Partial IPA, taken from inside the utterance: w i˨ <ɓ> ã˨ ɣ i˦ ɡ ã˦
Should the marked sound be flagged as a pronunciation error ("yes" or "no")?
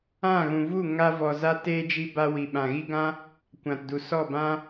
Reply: no